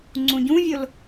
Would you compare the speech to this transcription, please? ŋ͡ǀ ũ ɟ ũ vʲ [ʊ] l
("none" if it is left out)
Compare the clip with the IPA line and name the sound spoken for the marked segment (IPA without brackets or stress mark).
ʊ